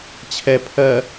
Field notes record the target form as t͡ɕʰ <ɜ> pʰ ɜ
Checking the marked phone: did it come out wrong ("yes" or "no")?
yes